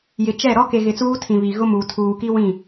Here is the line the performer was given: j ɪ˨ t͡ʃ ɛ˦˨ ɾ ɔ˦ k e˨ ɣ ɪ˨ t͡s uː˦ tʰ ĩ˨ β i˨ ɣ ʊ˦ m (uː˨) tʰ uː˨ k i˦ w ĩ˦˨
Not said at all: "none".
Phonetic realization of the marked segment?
uː˨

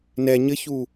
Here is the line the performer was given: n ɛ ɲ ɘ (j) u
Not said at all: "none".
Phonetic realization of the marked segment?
ç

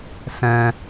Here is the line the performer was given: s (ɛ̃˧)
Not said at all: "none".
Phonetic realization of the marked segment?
ɛ̃˧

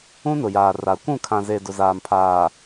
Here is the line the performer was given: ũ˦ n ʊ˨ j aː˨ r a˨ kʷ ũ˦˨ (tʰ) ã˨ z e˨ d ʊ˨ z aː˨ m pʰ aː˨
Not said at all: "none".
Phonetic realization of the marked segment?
kʰ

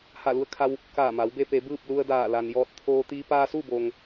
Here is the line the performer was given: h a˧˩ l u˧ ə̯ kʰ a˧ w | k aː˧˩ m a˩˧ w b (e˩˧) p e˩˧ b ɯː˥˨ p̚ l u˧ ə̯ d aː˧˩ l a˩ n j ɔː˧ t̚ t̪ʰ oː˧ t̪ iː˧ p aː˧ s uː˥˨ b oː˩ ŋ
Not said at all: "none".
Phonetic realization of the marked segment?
e˧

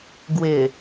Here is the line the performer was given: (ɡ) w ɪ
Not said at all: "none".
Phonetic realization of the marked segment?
ɡ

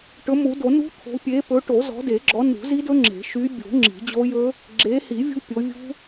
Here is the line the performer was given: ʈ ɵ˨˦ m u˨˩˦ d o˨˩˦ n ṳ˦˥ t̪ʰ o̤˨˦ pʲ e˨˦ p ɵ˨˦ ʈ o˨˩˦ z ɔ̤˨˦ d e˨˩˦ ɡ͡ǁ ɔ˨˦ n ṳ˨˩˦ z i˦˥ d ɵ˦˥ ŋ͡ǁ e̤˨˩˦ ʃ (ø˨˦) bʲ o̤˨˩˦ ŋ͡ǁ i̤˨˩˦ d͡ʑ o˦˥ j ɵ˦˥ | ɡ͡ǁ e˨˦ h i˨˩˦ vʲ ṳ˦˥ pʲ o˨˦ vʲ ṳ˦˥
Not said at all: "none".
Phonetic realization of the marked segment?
y˨˦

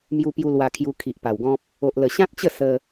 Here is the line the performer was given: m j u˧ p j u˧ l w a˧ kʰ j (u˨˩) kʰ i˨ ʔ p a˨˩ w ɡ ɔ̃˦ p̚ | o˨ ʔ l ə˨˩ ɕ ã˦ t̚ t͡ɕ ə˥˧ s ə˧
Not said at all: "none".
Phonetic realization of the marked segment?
u˧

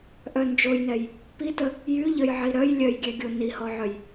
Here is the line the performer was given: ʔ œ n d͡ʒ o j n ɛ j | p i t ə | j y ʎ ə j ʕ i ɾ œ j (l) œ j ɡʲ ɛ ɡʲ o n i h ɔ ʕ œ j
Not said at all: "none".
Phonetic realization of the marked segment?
lʲ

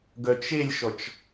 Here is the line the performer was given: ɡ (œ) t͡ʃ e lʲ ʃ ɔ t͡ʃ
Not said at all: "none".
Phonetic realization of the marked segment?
œ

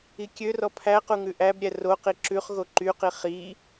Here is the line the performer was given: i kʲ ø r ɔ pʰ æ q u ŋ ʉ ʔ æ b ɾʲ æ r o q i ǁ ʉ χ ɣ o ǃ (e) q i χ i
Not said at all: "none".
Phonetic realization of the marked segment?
y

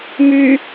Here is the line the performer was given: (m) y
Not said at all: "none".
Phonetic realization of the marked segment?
m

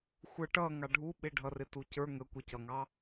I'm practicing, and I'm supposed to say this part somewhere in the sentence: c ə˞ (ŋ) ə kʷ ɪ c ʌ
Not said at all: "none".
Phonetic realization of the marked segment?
ŋ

